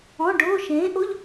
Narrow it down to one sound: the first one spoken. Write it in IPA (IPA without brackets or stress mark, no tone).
ɔ̃